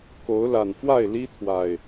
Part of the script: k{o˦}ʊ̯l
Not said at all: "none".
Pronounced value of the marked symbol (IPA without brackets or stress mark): o˨˦